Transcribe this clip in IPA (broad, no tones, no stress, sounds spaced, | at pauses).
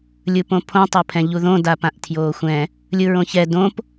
lʲ ɯ p õ pʰ õ tˤ ɤ pʰ ɛ̃ ʎ u ð õ d a p ã ʔ tʰ j oː xʷ ɛ̃ | lʲ ɯ ɹ õ ç ɛ d õ p